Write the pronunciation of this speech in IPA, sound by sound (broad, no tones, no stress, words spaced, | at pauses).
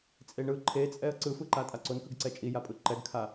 t͡sʼeɳɯ ǃʰet͡sʼɛə̯ ǀɯfɯǃa tʼaǀonkɯɡǀɛ t͡ʃʼijapʼɯ ǃɛɡkʰa